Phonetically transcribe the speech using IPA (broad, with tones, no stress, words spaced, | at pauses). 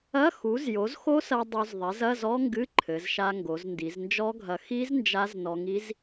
ɐ˧˥˧xu˩˥z jo˩˥zxo˦˥sɐ˧ dˤo˧zðˤɛ˩˥zɐ˧˥˧zɔ˦˥ ŋɡɨ˧˥˧ǃʰɘ˩˧zʃa˧ ŋɡo˩˧zndi˩˧znd͡ʒɔ˦˥ɡʱɐ˧ xi˦˥z nd͡ʒa˦˥znɔ˧ŋi˦˥z